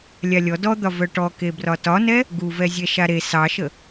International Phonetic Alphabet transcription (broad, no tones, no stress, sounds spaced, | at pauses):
lʲ a lʲ ɔ d ɔ d̪ ɒ v œ ʈ ɔ k e b r ɒ t ɒ n ɛ | ɡ u v ɛ zʲ ɛ ʃ a ɾ e s ɑ ʃ ə